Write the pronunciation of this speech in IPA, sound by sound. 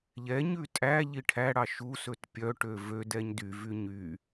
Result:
ʎ ɛ ɲ ʉ tʼ æ ʎ i ʈʰ æ ɽ ɑ ʃ u s ɵ t pʲ œ ʈ ø v ø d ɛ ɲ d y v y ɲ y

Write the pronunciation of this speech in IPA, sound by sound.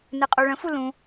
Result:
n ɨ qʼ u ɭ ə̃ f u l ũ

